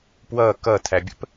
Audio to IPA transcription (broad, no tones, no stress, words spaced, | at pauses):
pwʌ kʌtʰæbʲə̰p